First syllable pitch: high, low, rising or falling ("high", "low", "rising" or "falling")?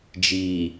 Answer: low